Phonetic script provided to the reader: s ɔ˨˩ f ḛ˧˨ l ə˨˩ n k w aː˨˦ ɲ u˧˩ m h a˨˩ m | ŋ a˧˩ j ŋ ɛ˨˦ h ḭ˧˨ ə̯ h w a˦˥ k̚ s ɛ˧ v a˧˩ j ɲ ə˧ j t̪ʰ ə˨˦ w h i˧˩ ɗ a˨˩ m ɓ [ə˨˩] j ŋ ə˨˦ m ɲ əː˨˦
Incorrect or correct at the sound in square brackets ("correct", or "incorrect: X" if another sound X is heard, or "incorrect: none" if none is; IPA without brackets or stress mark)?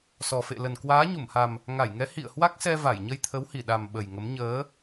correct